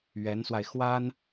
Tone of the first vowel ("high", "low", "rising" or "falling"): rising